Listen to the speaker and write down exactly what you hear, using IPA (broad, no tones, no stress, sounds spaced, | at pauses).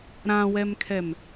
ɾ ã w ɛ m kʰ ɛ m